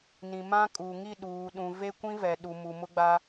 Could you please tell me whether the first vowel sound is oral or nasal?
nasal